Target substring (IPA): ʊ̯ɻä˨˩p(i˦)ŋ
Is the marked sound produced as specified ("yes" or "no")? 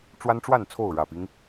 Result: yes